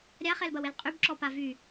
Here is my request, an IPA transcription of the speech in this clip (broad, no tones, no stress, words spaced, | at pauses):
ɾʲaχɛlbɐwel qʼybǁɔpa vy